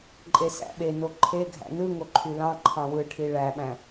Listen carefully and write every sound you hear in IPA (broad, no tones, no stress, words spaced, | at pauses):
ǃʼesæ̰ɓeno ǃʰeɡʱæ̰ nɯŋo ǃʰylɑ̃ǃʰɑ̃ wɯʈʰi ɭæɓæ̃